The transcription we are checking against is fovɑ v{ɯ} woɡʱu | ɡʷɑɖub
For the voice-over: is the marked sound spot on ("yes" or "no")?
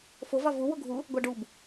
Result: no